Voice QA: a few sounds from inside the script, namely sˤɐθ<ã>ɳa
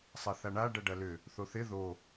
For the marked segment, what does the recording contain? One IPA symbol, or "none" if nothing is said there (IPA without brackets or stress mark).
a